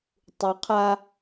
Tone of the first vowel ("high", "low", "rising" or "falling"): low